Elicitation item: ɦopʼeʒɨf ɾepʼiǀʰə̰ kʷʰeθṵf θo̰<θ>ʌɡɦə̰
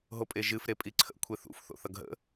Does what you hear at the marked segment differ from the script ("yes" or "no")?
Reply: no